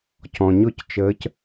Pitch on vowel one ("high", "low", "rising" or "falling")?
low